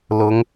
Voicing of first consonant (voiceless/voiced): voiced